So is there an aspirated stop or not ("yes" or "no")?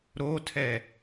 yes